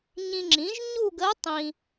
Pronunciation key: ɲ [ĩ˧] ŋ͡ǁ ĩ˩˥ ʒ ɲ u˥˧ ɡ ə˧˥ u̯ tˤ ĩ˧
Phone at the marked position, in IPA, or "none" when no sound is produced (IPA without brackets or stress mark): ĩ˧